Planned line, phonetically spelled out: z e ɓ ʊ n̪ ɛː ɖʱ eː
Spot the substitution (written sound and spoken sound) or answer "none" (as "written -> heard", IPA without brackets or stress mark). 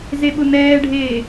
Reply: none